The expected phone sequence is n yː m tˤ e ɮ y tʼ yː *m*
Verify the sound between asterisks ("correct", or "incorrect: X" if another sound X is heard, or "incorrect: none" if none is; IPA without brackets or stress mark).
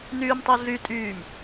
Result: correct